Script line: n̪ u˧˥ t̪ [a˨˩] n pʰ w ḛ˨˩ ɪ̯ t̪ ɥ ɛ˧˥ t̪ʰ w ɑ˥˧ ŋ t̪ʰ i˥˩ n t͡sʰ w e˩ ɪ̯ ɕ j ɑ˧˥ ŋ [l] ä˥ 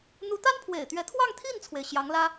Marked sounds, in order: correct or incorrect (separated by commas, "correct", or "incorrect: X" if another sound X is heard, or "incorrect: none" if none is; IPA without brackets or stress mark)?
incorrect: a˥, correct